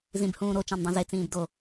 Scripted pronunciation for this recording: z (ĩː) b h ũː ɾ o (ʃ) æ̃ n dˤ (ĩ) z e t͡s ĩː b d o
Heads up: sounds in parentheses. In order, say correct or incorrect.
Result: incorrect: ĩ, incorrect: t͡ʃ, incorrect: ẽ

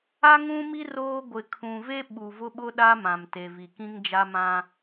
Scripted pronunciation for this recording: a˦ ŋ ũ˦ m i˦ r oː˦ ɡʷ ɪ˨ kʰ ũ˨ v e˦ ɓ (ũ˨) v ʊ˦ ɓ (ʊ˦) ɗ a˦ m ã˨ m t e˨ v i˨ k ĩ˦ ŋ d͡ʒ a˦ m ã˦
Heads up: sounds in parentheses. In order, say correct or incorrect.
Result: incorrect: u˨, correct

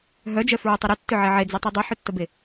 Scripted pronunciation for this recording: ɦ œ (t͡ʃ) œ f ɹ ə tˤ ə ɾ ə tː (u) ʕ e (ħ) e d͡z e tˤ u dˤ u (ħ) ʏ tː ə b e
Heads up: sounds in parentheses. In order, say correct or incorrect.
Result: incorrect: d͡ʒ, incorrect: ʏ, incorrect: ʕ, correct

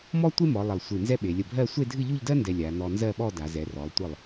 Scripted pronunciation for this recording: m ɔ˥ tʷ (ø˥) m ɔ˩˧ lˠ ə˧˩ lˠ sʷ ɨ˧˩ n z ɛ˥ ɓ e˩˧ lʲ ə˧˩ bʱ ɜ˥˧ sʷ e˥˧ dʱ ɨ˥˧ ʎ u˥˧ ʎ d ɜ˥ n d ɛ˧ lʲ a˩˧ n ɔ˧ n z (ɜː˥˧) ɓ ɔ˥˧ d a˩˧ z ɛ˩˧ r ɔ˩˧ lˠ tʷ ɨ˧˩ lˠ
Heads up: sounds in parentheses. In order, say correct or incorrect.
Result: incorrect: e˥, incorrect: ɜ˥˧

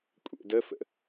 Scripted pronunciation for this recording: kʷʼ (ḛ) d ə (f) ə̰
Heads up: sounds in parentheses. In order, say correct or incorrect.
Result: correct, correct

